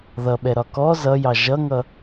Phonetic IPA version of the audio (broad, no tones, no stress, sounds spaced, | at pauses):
ð ʌ ɓ ɛ ɾ ɒ k ɔ z ʌ j ɑ ʒ ʌ ŋ ʌ